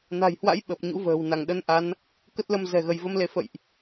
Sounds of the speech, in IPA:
n a̤˨˩ j h w a̰˧˥ j ɓ ə˨˩ p̚ ɲ ṵ˧˥ v ə̤ː˨˩ w n a˧˩ ŋ ɗ ə˧ n ʔ a˨˦ n | k ə˦˥ t̚ l ə˧ m z ɛ̤˨˩ ɣ ə˧˩ j v ə˧ m l e˨˦ f ə̰˧˨ j ʔ

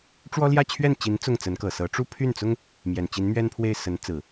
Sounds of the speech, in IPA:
ʈ͡ʂ w ɔ˥ l j ä˥˧ t͡ɕʰ ɥ ɛ˥˩ n t͡ɕ i˧˥ n t͡s ʊ˥˩ ŋ t͡s ə˧˥ n k ɤ˨˩ s ɤ˧˥ ʈ͡ʂ u˥˧ pʰ y˥˩ n t͡s ʊ˥ ŋ | m j ɛ˨˩ n t͡ɕ i˧˥ n m ɥ ɛ˥ n pʰ w e˥˩ ɪ̯ s ə˧˥ n t͡s ɹ̩˨˩˦

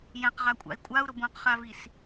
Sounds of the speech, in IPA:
j ɛ̃ q ʁ a kʷʼ a̰ i̯ kʷʼ a u̯ ɾ ʊ b õ q χ a v i s

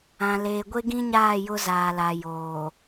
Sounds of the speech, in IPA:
ã˨ l eː˨ ɡʷ e˦ ɡ ĩ˦ ɲ aː˦˨ j ʊ˦ z aː˨ l a˨ j oː˨

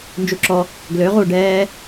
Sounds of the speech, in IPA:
n d͡ʒ u ǁ ɔ | ɡ l ø ʁ uː ɖ ɛː

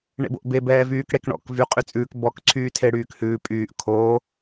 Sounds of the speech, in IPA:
ɳ ḛ b o̰ ʔ b e b ɛː v yː k ɽ e k ɳ ɔ̰ k v y qʼ y t͡sʼ ʉː k b ɔ k ǀʰ yː tʰ e ɽ yː k h ʉː pʼ yː ʔ kʰ oː

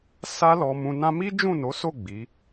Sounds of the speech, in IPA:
s a˦ l ɔ˧ m ũ˧ n ã˦ m i˦ d͡ʒ ũ˦˨ n o˨˦ s o˦˨ ɡ͡b i˨˦

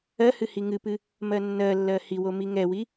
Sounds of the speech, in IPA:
ɜ h ɨ h i ŋ ɨ p ɨ | m ɜ nː ɜ lː ɜ h i w o m i ŋ ɛ w i

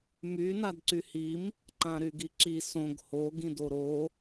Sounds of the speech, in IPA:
m y n a d ǀ y h i m | ǃ ã ɾ y ɡ i ǁ i s õ ɡ h o ɡ ĩ d o ɾ o

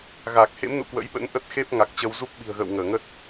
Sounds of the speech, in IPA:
ɣ aː˨˩ k̚ h ḛ˧˥ m n ṵ˧˨ k w ə̰˧˥ j ɓ ə̰˧˥ n ʔ ə˦˥ t̚ x e˦˥ p̚ ŋ a˨˩ k̚ t͡ɕ ə˧ w z u˦˥ p̚ ɓ i̤˨˩ ə̯ ɣ ə̰ː˧˨ w ŋ əː˧˩ ŋ ə˦˥ t̚

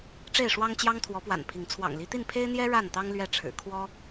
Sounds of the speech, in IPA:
ʈ͡ʂ e˥˨ ɪ̯ ʂ w ɑ˦ ŋ t͡ɕ j ɑ˦ ŋ t̪ʰ w ɔ˨˦ p w a̰˨˩ n pʰ i˨˦ ŋ t͡sʰ w ɑ̰˨˩ ŋ l i˨˦ t̪ i˥˨ n pʰ e˦ ɪ̯ n̪ j ɛ˦ ɻ a˥˨ n t̪ ɑ˦ ŋ l ɥ ɛ˥˨ ʈ͡ʂʰ ɻ̩˨˩ kʰ w ɔ˦

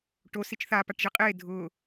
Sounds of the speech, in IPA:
ʈ o s i t͡ʃ θ a p a ʈ ʒ i qʼ eː dʱ ʊː

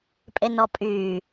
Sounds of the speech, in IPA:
pʼ e n ɔ pʼ yː

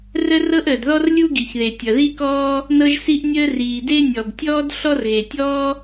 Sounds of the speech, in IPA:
r ə˥ r ɤ˥ ʔ əː˩ d ð ɔ˥ r lʲ u˥ ɡ i˩ ç ð e˩ tʲ ʌ˩ ð i˥ k ɔː˥ | n ɤ˥ ʒ s i˥ ʔ nʲ əː˥ r iː˩ d e˥ nʲ ɔ˩ b tʲ ɔː˥ d ɬ ɔ˥ r ɣ e˩ tʲ ɔː˥

